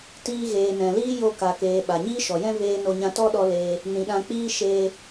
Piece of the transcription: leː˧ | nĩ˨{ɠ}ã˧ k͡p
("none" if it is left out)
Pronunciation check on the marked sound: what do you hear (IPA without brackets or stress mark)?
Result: ɗ